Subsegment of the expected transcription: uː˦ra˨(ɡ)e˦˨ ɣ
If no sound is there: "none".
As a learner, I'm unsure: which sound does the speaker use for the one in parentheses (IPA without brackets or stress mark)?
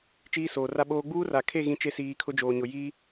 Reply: kʰ